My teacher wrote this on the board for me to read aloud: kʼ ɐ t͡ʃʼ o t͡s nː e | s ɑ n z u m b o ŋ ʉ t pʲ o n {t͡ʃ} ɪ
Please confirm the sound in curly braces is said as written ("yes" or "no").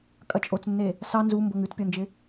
no